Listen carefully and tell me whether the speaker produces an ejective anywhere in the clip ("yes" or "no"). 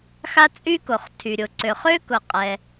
yes